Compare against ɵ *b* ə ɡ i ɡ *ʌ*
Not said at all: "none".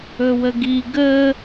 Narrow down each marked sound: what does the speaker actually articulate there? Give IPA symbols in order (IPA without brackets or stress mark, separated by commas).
w, ə